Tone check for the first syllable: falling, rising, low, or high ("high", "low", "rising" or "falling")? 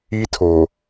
high